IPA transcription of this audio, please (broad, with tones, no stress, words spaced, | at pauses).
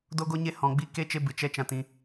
do˦ɡo˦ɲe˦ hɔ̃˧ɡ͡bi˦ ke˦t͡ʃe˦ bɨ˧t͡ʃɛ˦ t͡ʃã˦tĩ˦